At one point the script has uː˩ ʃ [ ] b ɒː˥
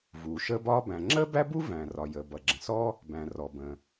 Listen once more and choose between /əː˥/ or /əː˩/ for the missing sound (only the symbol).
əː˥